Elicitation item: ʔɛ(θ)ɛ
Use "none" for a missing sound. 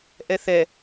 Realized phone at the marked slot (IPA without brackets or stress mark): θ